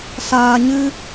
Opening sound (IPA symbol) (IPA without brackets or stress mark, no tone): s